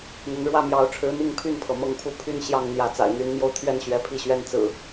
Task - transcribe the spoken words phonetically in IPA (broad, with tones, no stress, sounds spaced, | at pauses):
n̪ ə˨˦ n ɻ w ä˥˨ m j ɑ˨˦ ʊ̯ ʈ͡ʂʰ ɻ̩˨˦ n̪ i˥˨ ŋ pʰ y˥˨ n pʰ ɤ˩ m ɤ˦ ŋ pʰ u˥˨ pʰ y˦ n ɕ j ɑ˥˨ ŋ n̪ j ä˨˦ t͡s a̰˨˩ ɪ̯ n̪ y˨˦ n m j o˧ ʊ̯ t̪ʰ ɥ ɛ˥˨ n ɕ ɥ ɛ˨˦ pʰ i˥˨ ɕ ɥ ɛ˦ n t͡s ɹ̩˨˩